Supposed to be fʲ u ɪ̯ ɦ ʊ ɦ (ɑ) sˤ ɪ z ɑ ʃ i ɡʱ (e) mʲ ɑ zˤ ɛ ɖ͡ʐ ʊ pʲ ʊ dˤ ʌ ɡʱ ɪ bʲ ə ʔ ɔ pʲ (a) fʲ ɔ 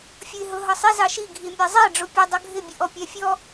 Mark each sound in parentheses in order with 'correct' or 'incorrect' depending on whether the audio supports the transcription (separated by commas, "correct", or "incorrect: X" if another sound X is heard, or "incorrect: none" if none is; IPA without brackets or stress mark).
incorrect: ʌ, incorrect: i, incorrect: æ